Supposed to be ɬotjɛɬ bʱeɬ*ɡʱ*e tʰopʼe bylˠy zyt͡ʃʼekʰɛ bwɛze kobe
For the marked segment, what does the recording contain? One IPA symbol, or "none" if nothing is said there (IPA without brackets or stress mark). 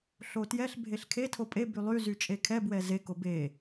kʰ